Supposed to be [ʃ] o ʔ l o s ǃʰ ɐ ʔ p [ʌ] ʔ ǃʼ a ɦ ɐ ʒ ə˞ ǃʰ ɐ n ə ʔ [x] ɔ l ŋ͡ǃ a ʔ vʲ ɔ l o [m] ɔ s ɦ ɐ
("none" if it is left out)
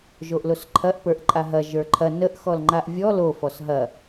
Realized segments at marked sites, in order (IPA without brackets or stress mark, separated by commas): ʒ, ə˞, x, f